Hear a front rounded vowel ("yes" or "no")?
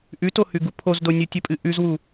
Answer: no